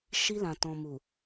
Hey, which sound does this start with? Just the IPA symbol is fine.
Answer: ʃ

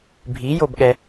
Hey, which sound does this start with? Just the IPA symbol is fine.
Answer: bʱ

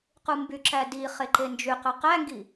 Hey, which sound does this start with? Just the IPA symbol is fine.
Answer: q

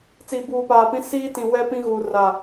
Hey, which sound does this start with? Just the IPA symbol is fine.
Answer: t͡s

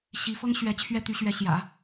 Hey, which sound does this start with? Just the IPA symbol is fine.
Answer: ɕ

